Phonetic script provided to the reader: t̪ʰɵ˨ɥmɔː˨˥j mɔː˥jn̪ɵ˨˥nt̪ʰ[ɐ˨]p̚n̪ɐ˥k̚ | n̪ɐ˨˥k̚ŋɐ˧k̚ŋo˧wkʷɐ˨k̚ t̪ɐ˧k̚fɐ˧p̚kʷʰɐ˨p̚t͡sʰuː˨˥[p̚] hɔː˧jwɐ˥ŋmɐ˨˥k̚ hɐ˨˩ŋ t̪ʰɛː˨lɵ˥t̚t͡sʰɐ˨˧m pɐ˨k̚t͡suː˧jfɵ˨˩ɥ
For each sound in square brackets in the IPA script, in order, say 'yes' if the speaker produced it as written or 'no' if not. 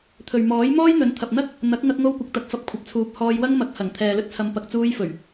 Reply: yes, yes

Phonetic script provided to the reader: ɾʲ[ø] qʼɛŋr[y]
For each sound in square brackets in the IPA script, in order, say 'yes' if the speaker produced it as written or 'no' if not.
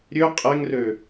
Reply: yes, no

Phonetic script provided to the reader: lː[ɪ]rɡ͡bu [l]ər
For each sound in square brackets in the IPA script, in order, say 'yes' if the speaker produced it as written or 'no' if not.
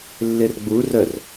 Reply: yes, no

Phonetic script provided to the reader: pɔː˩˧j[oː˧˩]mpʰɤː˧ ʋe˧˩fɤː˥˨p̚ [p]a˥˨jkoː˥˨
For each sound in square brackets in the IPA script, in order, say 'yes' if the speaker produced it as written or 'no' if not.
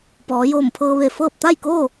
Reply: yes, no

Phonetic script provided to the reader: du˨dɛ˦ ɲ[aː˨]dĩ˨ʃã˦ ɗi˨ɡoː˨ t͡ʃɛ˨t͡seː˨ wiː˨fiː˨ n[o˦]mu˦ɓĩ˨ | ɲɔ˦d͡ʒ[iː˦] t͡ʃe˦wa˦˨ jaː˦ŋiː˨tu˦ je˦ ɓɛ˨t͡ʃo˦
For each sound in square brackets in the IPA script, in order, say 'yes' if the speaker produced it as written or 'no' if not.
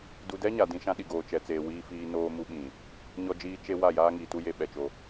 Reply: no, no, yes

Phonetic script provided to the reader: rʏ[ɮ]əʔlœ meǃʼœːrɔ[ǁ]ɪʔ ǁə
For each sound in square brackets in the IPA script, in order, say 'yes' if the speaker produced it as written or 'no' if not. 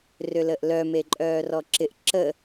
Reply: no, yes

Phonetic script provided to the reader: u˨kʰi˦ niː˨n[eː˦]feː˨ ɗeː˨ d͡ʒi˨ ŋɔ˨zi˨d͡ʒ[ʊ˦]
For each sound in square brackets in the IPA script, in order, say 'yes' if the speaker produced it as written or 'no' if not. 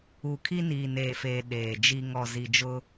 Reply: no, yes

